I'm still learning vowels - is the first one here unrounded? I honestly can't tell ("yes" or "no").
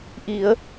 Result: yes